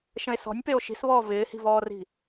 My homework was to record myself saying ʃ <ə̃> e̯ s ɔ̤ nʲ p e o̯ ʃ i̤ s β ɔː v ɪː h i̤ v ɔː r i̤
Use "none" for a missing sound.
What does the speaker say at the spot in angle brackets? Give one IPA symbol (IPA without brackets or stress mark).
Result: ə̃